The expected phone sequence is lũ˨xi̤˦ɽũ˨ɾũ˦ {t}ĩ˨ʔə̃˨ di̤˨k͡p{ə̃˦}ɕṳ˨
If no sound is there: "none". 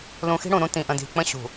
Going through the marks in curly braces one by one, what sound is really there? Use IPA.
t, ə̃˦

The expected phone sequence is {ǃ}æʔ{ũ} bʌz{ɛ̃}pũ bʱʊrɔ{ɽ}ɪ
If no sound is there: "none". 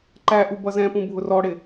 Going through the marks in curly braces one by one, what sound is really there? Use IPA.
ǃ, u, ɛ̃, ɽ

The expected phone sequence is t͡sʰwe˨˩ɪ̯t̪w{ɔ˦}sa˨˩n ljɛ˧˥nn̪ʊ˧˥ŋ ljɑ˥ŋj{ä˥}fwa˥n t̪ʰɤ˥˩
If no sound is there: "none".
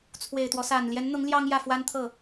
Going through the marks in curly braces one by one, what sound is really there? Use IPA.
ɔ˦, ä˥˩

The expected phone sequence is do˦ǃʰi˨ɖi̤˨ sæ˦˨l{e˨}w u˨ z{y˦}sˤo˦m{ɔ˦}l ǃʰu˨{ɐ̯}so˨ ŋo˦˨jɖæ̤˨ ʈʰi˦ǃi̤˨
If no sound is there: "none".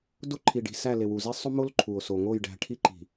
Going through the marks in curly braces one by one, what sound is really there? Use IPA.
e˨, i˦, o˦, o̯

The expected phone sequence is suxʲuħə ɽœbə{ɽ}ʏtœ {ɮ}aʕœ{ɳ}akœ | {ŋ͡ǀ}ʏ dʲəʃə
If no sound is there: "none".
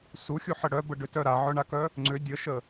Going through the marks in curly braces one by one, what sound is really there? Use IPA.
ɖ, ɾ, ɳ, ŋ͡ǀ

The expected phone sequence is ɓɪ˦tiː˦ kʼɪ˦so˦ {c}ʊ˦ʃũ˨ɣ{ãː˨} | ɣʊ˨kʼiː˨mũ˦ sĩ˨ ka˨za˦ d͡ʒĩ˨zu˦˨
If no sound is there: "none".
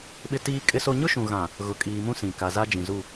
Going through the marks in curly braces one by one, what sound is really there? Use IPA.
ɲ, ã˨

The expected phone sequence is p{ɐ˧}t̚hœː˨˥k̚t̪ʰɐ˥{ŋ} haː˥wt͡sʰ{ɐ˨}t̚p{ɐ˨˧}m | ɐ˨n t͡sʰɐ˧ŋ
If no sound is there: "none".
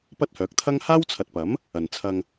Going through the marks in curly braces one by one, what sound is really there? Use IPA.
ɐ˥, ŋ, ɐ˨, ɐ˨˥

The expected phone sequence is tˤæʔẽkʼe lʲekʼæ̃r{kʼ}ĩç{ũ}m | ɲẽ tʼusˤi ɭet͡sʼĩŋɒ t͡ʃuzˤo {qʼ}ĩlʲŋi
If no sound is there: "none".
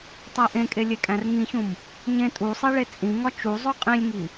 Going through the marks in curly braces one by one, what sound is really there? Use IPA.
ŋ, ũ, qʼ

